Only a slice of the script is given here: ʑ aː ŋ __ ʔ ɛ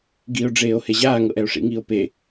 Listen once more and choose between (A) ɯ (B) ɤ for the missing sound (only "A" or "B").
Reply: B